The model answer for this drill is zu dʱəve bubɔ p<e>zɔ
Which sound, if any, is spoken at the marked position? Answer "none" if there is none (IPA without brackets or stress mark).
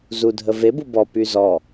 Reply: y